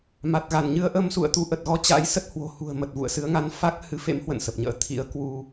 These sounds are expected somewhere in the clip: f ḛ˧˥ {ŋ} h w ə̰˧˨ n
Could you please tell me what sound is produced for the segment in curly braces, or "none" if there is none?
m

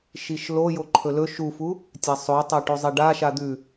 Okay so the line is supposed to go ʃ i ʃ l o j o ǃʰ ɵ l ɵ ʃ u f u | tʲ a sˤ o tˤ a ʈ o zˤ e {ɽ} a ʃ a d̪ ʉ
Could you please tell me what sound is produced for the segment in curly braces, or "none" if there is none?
ɖ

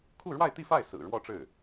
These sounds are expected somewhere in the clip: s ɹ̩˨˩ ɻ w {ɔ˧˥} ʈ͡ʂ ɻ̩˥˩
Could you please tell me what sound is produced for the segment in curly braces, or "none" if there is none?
ɔ˥˧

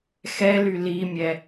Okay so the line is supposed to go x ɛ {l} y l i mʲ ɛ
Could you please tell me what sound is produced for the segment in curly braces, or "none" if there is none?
l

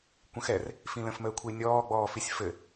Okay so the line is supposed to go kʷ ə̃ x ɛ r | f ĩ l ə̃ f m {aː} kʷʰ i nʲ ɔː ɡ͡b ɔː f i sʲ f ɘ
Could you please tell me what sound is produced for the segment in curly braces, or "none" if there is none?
əː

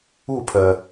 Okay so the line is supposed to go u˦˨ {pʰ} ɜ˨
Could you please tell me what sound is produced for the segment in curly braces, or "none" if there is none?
pʰ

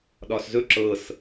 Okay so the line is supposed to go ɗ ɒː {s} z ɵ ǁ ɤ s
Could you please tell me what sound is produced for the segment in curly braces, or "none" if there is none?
s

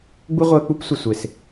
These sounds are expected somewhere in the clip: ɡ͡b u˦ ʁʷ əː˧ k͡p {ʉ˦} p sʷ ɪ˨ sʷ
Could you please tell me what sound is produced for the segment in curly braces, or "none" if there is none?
u˦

